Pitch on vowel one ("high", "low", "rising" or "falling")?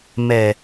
low